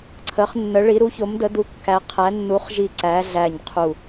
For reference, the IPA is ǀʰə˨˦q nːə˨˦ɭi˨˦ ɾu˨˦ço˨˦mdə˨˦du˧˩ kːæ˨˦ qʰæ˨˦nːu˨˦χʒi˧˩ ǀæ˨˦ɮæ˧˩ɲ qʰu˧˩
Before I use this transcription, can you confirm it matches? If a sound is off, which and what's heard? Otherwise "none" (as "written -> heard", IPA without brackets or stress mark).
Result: q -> χ